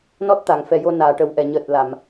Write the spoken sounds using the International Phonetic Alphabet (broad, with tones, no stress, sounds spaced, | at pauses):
n ɔ˦˥ t̚ t̪ a˨˩˨ ŋ f ɛ˨˩ j o˧ n aː˨˩ ʈ ə˨˩˦ w ʔ ɛ˨˩˨ ɲ əː˨˩ t̚ l a˨˩˨ m